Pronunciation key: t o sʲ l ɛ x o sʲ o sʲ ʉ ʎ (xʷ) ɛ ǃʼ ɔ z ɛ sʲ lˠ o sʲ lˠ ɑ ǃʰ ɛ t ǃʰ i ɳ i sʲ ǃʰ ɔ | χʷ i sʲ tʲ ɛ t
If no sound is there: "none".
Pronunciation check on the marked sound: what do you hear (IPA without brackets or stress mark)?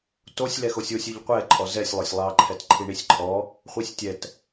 qʷ